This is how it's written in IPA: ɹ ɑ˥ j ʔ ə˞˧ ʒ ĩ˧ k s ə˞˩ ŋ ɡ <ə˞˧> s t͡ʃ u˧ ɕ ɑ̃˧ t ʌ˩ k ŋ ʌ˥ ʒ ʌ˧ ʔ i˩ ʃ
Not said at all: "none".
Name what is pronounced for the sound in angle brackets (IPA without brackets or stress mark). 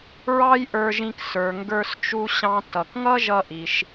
ə˞˧